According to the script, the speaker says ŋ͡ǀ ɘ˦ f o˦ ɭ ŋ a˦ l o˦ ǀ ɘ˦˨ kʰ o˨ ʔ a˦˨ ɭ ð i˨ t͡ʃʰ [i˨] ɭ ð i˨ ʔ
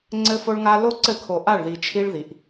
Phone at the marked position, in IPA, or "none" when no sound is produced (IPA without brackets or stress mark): i˦